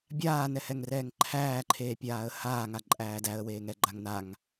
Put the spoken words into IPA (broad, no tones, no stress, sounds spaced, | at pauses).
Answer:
bʲ aː n ɛ h ɛ ŋ r ɛː ŋ ǃʰ æː ǃʰ eː pʲ aː ə̯ h aː ŋ a ǃʼ æː d æ ə̯ w eː ŋ ɛ ɡ͡ǃ a ŋ n a ŋ